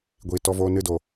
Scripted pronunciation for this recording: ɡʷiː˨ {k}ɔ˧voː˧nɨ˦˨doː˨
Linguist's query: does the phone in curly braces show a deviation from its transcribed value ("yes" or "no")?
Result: yes